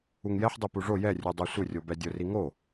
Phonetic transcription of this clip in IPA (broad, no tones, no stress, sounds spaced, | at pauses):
u ŋ j ɛ ħ dˤ i p u ʐ o j ɛ rʲ u dˤ ɛ sʷ ɪ rʲ o b ɛ dʲ ʊ r i ŋ o